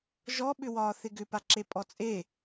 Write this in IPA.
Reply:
ʒɔɓʏwɒː θɪɡʏpaǁe pʼɔt͡sʼe

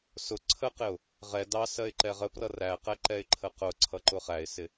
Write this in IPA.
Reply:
sʊ ǀʰəqɪʊ̯ | ʁɛ dɑsɜɪ̯ ǃɛʁəprʌ ræqɛǃɛɪ̯ ǃʰəqʊ ǀʰʌǃʊχæɪ̯sɪ

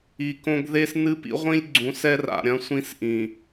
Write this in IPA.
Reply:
i˨kõ˦ɡ ðe˦snɨ˦pḭ˦ʁʷĩ˦lʲ ɡ͡ǀũ˨˦sɛ˦r a̰˨ɾʲɐ̃˦sʷĩ˦sʔĩ˨

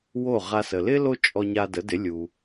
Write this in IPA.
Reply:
wo˥˩ʁa˧sə˩ lɪ˥ lo˥ t͡ʃʼɔ˧ɲa˧də˩˥dɪ˩˥ lʲu˩

